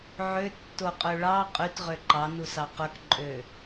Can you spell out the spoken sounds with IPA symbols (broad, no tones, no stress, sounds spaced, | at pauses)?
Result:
ʕ ø tː o qʼ ø ɭ ɑ qʼ y t ʁ ø ǃ ɑ n u s ɑ q ɵ k ǃʼ ø